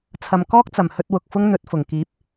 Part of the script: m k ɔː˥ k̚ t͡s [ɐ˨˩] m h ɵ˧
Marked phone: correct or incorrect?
correct